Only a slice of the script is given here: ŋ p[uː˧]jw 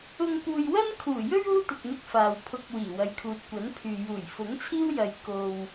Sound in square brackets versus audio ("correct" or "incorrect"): incorrect